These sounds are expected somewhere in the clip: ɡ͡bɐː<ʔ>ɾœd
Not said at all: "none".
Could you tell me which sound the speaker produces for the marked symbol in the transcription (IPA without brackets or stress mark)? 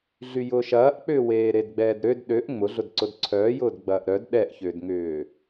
ʔ